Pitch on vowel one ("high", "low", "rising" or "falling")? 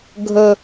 low